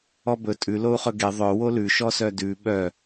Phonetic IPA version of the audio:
ɔbɵ tʼʉ lou̯χɵɡe ðˤœ wolʉ ʃɔsœdʉ ɓœ

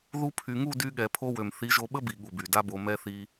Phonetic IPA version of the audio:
ðu˧pʰy˨ŋu˦˨dy˧ ɠɛ˨pʰo˧wø˨m θi˨˦ʒo˧ɓə˦bi˨ ɠu˨by˨da˦bo˧ mɛ˧θi˧

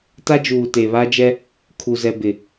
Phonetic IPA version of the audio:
ta˦d͡ʒuː˨ te˨βa˦ d͡ʒɛ˦ | kʰu˨zɛ˨ bɪ˨

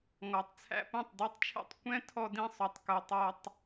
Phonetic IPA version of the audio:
ŋɔ˨tˤt͡sʰæ̰˧ põ˦˨tˤdʉ˧tˤt͡ʃʰɛ̰˦˨tˤ kʷɛ̃˦tʰɔ˧dĩ˧sˤø˨tˤ kɵ˨ tˤœ˧tˤ

